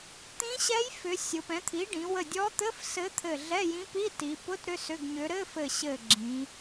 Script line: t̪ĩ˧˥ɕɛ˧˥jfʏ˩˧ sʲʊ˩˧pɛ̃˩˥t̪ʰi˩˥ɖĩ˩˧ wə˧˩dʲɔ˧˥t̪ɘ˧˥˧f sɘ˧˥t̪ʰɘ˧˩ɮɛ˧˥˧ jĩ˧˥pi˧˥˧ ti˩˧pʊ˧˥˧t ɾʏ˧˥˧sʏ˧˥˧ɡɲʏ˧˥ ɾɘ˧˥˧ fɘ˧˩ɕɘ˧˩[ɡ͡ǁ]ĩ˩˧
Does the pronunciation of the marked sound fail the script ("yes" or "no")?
no